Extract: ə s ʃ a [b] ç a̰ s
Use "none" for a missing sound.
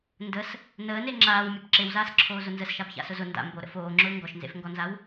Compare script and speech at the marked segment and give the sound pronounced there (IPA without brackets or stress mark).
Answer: b